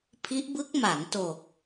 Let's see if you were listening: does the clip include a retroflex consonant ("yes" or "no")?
no